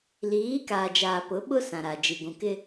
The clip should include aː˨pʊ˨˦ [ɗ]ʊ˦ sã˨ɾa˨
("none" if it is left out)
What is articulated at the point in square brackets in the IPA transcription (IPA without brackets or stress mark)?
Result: ɓ